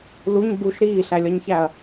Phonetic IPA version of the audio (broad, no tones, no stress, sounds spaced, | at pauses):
l u ɲ b u ʃ ɾ iː ɬ æ lʲ ɒ ɲ ç æ ɐ̯